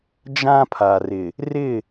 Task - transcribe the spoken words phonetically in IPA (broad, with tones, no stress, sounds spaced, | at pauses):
d͡ʒ ã˦ pʰ a˨ r ɪ˨ | r ɪ˦˨